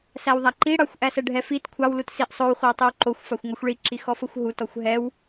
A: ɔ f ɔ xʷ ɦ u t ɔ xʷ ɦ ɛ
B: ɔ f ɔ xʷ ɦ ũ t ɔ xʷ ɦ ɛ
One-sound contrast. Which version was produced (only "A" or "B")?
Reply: A